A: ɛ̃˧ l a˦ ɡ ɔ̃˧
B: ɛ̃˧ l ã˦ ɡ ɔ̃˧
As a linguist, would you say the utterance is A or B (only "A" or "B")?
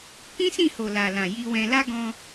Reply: A